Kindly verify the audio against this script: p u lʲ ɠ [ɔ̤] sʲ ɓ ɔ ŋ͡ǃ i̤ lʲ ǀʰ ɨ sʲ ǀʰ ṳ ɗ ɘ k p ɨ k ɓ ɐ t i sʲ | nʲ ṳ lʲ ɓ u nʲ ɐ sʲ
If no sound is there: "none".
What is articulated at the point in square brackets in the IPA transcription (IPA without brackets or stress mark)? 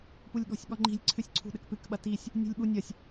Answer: ɔ̤